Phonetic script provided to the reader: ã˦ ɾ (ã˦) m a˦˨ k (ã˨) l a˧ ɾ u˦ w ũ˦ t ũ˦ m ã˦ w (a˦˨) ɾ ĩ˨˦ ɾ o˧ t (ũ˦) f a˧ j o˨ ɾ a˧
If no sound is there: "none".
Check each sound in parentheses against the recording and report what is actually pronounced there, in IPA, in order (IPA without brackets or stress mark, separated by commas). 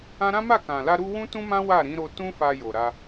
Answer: ã˦, ã˨, a˦˨, ũ˦